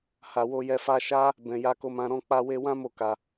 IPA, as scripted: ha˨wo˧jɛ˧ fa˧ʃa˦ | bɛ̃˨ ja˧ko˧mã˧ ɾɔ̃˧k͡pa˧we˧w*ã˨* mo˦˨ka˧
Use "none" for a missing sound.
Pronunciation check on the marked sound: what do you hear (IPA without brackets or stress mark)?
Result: ã˦